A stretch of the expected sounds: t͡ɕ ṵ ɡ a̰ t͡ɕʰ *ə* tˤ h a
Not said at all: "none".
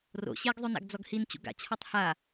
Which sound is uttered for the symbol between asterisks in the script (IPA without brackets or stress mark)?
a